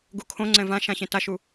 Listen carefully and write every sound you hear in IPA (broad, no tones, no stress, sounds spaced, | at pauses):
ɡ u kʰ õ ŋ͡ǀ ɛ̃ v ã ʃ ã ɕ ẽ t a ʃ u